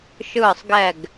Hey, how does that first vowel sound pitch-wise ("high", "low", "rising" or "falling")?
falling